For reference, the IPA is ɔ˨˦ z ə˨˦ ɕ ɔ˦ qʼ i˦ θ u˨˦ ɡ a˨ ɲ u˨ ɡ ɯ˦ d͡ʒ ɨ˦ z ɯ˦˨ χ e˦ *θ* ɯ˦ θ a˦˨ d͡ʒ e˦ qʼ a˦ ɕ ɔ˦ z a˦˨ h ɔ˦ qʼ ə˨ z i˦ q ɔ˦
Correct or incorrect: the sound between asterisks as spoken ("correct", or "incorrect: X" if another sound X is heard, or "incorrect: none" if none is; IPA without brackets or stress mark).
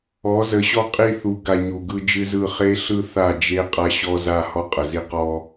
incorrect: ɬ